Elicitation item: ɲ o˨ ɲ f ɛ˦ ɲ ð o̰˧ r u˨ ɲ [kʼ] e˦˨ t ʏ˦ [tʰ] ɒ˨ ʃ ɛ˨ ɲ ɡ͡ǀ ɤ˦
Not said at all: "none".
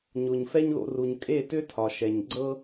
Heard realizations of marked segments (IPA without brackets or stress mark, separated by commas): kʼ, tʰ